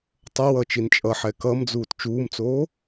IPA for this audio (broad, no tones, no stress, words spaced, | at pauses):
tˤʌwʌːt͡ʃin t͡ʃʼʌħɛ kʌmd͡zuːt t͡ʃuːmt͡soː